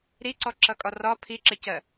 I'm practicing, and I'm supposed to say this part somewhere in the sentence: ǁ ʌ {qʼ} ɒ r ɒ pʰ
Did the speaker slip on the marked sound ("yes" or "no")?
yes